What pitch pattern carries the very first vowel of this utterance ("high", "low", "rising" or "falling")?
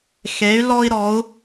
rising